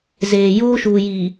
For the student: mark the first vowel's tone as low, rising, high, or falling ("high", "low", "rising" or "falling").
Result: low